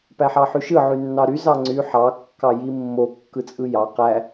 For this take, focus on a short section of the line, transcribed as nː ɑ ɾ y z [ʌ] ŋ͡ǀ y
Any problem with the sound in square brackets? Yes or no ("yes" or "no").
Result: yes